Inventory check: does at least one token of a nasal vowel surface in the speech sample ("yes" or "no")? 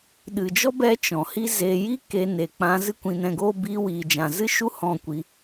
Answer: yes